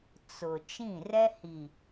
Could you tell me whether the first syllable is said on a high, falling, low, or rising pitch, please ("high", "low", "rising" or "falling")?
low